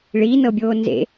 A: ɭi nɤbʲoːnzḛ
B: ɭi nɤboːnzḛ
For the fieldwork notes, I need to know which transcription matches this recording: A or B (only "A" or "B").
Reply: A